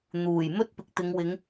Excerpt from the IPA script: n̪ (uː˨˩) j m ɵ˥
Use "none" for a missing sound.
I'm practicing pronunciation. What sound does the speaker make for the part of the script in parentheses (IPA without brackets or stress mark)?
uː˨˩